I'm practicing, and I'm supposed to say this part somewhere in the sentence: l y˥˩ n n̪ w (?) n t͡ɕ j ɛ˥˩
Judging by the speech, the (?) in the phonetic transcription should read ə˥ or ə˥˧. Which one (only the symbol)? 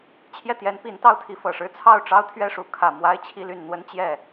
ə˥